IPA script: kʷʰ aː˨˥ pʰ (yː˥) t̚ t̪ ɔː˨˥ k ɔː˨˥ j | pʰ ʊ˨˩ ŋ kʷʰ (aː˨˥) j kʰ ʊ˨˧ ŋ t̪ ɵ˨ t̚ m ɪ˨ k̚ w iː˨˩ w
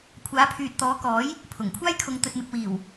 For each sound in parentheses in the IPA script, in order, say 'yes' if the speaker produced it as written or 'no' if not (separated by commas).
no, no